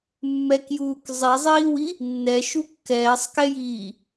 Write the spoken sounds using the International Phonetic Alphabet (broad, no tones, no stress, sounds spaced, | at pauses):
mː ɛ k j uː k zˤ i zˤ iː w i | nː ɛ ʃ u kː ɛː sˤ k ɛ j iː